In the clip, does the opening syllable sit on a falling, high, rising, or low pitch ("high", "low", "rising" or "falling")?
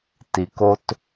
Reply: low